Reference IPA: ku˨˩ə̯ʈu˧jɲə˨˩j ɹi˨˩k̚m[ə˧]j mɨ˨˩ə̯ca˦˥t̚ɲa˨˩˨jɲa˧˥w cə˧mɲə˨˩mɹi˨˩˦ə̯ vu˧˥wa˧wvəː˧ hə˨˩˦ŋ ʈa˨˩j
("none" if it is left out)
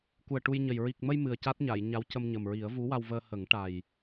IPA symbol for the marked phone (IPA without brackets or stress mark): ə˧